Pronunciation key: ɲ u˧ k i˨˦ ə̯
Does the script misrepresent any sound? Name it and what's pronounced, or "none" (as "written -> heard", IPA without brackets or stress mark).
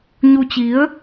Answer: k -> t͡ɕ